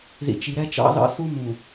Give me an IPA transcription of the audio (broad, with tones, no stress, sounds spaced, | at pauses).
ð ḭ˨ t͡ʃ i˨ ɾ ɛ˦ t͡ʃ ɑ̰˦ ð ɑ̰˦ θ u˦ m ũ˨